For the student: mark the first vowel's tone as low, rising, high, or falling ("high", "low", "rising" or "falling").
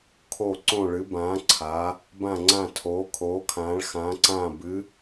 falling